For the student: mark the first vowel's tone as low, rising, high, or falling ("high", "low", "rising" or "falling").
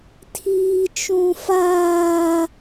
high